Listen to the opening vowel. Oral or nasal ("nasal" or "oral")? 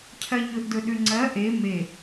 oral